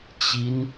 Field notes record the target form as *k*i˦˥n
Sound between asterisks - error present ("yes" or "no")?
yes